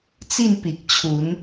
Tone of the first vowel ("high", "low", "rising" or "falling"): falling